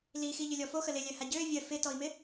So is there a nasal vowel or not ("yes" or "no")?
no